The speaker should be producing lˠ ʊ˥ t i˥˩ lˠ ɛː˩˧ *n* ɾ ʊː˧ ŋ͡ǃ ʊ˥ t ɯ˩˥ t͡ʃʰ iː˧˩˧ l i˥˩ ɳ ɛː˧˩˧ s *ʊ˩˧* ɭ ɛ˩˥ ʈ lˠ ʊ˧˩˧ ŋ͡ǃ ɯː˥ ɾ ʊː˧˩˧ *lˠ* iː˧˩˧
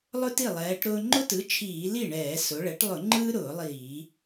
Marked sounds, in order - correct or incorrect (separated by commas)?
incorrect, correct, correct